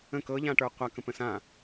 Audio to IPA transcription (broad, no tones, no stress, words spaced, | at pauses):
ə̃k ɤʎãʈə˞ qʷakə̃pə̃s ã